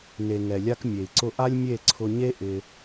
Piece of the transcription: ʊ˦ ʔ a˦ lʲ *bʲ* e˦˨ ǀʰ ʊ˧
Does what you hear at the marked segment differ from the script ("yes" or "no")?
yes